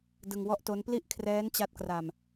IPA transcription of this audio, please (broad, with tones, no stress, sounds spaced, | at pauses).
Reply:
d ɯ˧ ŋ w ɔ˥˩ ʔ t o˦˥ n p l i˥˩ ʔ kʰ r ɛː˦˥ n t͡ɕ a˦˥ t̚ k r a˧ m